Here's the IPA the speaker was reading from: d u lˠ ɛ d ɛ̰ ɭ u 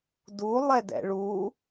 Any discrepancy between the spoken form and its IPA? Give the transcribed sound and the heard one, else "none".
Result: none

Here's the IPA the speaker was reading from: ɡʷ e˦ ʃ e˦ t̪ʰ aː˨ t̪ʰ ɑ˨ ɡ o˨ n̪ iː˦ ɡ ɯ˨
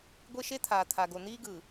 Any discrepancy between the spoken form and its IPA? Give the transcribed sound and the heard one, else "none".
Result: ɑ˨ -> a˨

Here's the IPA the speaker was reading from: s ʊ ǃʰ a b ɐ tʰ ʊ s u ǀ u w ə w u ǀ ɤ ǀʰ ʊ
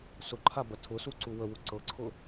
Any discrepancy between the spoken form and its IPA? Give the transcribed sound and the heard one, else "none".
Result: none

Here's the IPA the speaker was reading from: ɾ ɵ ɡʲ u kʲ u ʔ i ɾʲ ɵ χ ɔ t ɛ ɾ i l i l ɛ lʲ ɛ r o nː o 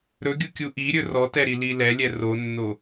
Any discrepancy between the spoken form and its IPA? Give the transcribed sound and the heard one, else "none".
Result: χ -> r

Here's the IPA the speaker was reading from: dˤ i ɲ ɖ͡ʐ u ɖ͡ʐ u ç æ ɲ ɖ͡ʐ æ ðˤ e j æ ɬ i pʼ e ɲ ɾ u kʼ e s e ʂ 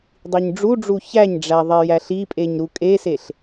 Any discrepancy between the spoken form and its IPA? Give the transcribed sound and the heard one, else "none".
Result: ʂ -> ɬ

